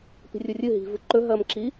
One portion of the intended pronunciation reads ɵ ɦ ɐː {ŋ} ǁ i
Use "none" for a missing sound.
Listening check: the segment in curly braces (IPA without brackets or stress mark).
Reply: m